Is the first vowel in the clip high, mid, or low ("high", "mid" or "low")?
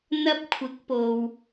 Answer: low